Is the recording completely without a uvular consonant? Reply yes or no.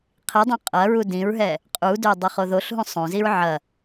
no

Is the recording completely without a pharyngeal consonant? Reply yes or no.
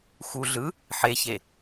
no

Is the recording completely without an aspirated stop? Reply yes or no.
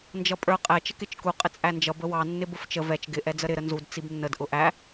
yes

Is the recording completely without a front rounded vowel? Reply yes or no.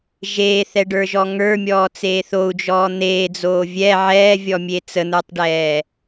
yes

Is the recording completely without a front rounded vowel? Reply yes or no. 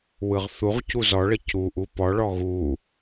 yes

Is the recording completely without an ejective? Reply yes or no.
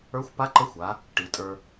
no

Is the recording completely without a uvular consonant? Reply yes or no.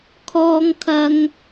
yes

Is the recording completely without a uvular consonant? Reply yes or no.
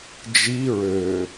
yes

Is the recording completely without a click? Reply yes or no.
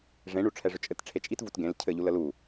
yes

